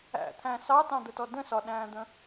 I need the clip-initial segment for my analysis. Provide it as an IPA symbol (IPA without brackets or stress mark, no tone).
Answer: æ̰